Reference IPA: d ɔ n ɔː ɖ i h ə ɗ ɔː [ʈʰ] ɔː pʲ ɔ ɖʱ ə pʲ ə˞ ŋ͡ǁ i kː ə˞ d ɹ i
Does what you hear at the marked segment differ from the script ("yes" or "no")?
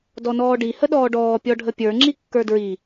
yes